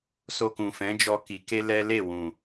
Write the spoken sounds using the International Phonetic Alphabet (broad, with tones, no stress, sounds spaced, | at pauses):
s o˧ k ũ˨ f ɛ̃˨˦ d͡ʒ ɔ˧ k i˨ k e˧ l ɛ˦ l e˦˨ w ũ˨